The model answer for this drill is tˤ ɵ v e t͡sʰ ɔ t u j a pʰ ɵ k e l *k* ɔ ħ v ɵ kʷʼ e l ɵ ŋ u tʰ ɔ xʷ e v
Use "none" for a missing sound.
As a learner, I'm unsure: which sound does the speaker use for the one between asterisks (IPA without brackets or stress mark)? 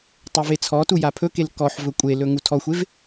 k